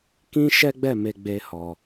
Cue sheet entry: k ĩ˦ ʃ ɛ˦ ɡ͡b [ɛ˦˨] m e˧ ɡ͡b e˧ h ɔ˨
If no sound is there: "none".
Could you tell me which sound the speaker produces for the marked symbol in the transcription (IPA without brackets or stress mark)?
ɛ˦˨